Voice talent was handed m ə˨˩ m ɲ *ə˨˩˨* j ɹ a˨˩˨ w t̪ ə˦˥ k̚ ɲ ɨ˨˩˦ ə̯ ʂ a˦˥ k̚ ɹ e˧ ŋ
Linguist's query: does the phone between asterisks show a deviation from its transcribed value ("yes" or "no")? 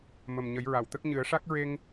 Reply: yes